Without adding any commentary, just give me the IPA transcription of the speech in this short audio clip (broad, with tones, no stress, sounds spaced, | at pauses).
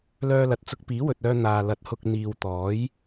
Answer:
l œː˧ l ɐ˨ t̚ t͡s ʊ˧ k̚ p iː˨˥ w ɵ˨ t̚ œː˧ n̪ aː˨ l ɐ˨˥ t̚ h ʊ˧ k̚ n̪ iː˨ w t̪ ɔː˨˥ j